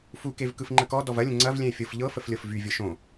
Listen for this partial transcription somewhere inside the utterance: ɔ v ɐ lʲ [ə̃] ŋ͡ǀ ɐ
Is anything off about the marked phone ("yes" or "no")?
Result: no